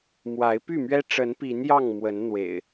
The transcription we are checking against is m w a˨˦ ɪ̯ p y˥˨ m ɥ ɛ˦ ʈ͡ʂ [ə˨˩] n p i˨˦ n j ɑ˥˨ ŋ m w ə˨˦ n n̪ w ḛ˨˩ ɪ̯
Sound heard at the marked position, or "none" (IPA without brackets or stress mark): ə˨˦